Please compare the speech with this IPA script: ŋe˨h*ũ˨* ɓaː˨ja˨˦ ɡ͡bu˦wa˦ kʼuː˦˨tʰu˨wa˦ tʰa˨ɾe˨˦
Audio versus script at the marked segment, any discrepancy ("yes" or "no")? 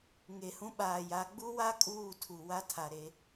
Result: yes